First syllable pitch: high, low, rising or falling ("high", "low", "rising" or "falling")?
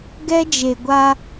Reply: high